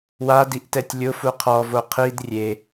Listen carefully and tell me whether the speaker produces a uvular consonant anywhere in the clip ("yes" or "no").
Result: yes